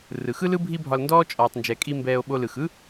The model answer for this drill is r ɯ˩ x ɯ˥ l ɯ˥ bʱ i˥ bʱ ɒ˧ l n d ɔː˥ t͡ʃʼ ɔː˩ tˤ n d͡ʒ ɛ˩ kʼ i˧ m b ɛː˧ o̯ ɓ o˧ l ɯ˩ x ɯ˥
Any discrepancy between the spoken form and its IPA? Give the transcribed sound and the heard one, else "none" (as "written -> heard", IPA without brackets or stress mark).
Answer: none